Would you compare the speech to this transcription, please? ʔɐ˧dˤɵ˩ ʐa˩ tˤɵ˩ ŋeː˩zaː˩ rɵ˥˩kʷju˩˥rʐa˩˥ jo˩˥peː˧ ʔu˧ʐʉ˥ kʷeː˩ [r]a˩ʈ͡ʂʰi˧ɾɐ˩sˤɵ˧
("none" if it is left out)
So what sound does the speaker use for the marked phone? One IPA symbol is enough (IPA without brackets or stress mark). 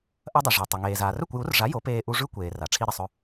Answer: r